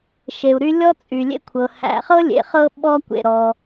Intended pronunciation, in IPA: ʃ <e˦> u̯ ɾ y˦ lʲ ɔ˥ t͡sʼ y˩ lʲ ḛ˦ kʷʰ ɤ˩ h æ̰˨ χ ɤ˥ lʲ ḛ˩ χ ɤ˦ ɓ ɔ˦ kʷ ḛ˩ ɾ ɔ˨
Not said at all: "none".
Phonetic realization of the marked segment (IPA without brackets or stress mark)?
e˩